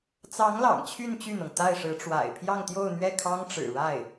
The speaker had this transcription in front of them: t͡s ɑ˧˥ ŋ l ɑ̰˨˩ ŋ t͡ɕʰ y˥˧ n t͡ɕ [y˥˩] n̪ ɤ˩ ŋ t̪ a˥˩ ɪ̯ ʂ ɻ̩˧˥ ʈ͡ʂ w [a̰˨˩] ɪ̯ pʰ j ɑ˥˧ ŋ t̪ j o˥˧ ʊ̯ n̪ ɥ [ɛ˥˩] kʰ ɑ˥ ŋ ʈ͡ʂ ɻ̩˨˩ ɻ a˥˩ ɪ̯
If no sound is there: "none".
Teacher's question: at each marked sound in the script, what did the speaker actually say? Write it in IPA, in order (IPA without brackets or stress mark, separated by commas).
y˥˩, a̰˨˩, ɛ˥˩